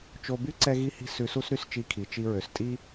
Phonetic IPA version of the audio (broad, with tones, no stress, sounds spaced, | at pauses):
t͡ʃ o˧ b y˥ ǀ ɛ˥ ɣ i˥ h i̤˥ s ʉ˧ s u˥ s ɾ y˥ s t͡ʃ i˧ kʰ i˩ t͡ʃ i˧ ɹ ø˩ s tʼ i˥